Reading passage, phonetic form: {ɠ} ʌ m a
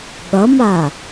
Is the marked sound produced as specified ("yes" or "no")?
yes